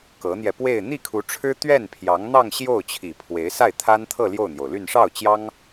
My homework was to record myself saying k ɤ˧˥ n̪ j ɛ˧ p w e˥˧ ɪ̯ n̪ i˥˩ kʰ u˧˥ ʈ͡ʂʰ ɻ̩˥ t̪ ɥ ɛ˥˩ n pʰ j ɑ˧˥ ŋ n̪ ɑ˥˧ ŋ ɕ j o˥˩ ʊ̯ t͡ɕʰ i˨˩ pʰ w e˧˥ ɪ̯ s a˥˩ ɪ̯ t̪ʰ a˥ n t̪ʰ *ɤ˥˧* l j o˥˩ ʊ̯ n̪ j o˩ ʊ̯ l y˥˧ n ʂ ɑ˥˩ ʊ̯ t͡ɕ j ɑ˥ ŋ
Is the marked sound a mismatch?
no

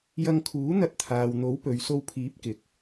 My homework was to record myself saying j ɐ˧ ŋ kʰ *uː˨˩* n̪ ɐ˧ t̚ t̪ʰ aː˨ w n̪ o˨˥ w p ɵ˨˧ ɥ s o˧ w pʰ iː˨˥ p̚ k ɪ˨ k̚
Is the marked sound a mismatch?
yes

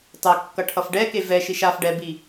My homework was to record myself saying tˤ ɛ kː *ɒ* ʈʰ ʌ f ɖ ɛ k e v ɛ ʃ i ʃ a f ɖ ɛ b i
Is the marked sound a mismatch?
yes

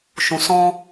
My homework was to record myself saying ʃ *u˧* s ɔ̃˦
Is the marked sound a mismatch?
yes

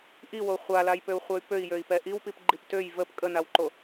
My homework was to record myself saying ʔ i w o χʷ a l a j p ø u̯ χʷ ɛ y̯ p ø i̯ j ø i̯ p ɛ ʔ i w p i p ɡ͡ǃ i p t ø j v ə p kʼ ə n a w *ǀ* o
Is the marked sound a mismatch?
yes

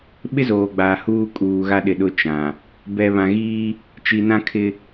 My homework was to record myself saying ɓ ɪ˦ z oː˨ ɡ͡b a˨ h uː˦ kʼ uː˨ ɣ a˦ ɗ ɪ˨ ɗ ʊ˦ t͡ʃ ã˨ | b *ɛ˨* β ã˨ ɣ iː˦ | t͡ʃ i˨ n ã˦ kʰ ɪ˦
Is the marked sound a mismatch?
no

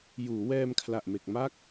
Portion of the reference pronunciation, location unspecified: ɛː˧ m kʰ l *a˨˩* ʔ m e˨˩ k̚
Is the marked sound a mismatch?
no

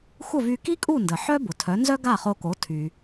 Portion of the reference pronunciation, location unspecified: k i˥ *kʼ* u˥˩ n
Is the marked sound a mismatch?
no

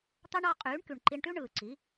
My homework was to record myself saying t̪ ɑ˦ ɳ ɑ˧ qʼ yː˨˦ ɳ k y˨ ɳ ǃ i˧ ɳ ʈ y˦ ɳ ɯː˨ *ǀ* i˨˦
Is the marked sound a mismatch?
no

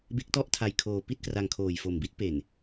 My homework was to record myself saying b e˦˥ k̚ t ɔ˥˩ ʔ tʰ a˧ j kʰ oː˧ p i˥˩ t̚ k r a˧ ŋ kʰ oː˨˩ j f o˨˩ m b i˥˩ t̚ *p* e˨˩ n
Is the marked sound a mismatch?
no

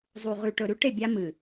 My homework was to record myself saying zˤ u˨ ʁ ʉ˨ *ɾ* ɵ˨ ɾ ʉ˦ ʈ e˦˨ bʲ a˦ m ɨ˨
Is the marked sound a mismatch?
yes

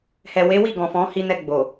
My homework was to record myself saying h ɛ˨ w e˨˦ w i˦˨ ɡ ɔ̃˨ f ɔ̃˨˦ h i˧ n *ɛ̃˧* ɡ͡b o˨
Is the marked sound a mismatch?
yes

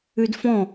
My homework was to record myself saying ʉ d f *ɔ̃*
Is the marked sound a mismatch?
no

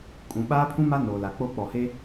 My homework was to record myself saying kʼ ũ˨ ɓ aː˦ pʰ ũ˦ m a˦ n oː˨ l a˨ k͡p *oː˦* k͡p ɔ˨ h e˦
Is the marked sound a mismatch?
yes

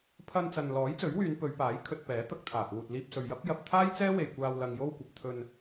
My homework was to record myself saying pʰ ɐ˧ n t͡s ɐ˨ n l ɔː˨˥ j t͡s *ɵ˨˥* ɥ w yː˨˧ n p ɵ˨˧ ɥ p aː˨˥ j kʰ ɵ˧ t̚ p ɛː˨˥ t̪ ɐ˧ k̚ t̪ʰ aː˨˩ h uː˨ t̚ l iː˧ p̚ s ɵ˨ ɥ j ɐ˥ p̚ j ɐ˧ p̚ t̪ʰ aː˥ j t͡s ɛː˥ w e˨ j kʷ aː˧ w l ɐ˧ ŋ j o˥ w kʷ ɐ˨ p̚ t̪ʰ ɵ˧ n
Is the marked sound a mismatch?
no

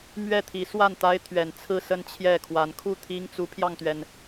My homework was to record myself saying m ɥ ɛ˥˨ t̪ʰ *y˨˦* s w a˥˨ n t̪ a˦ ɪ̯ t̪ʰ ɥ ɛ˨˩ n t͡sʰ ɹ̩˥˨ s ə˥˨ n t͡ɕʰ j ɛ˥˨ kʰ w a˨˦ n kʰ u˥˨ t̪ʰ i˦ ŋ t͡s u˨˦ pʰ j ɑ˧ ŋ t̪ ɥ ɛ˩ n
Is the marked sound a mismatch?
yes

